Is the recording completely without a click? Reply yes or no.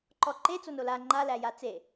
no